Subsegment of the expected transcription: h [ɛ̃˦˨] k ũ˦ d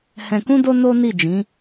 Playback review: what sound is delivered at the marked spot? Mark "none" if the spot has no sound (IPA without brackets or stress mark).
ɛ̃˧